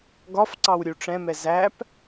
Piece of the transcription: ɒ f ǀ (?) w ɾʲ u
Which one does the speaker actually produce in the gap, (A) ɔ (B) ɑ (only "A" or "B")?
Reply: B